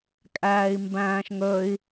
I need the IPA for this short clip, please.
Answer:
kʼæːi̯mbæ̃ːʃŋɵi̯

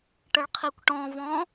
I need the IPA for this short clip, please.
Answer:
ʈəɭqʰikʷʈɔ̃vɔ̃

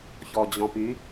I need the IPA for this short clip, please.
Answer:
çɔd͡ʑɔ̃py

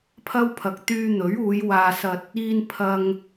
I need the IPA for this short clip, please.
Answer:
pʰɐ˥wpʰɐ˨k̚ t̪yː˧ n̪ɵ˨˥ɥuː˨˧j waː˧sɐ˧t̚ | iː˧n pʰɐ˧ŋ

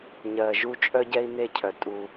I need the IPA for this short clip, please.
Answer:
ɲɜ˨ʒu˦ t͡ʃʼœ˦ɟɛ˦i̯ne˦˨cʰœ˨ tʼu˦

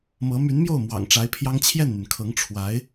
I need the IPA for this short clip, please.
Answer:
mɤ˧˥ my˧˥nmjo˥˩ʊ̯ mwɑ̰˨˩ŋʈ͡ʂa˧˥ɪ̯pʰjɑ˥ŋ t͡ɕʰjɛ˥˩nn̪y˩nkʰɤ˧˥ŋ ʈ͡ʂʰwa˧˥ɪ̯

